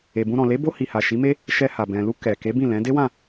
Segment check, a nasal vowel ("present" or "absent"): present